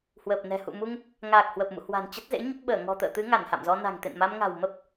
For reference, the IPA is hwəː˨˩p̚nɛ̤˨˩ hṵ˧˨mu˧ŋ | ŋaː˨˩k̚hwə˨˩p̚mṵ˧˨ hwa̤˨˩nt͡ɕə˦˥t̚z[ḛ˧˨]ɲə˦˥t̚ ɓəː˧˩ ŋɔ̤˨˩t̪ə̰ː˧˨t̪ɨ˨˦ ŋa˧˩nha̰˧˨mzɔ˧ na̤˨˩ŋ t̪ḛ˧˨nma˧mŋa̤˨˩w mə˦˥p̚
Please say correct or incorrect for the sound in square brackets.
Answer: incorrect